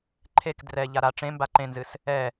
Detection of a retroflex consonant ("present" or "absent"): present